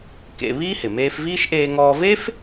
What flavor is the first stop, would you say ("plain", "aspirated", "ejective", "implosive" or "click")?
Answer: plain